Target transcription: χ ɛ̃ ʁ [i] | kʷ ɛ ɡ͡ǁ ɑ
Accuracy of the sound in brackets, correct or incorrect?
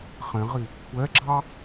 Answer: correct